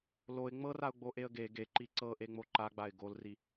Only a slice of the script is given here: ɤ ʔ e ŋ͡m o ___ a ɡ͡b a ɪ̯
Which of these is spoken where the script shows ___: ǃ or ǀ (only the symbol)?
ǃ